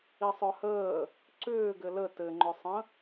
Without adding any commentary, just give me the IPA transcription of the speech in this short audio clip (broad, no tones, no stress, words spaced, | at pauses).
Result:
isˤœhəː | ǀʏːɡɘ lə tɘŋ͡ǃʏsˤə̃